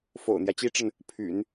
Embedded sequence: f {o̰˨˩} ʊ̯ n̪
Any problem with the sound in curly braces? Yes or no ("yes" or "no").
no